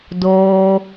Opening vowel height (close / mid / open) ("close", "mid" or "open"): mid